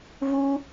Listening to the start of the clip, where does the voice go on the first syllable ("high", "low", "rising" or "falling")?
high